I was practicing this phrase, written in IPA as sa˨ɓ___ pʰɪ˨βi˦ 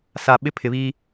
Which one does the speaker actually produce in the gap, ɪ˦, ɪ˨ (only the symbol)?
ɪ˦